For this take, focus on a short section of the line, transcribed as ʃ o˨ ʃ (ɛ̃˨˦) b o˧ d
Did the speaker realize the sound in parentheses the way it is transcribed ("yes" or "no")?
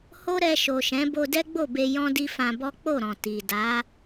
yes